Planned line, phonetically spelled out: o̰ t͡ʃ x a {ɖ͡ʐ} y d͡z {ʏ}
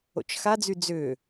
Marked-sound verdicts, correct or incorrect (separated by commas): incorrect, correct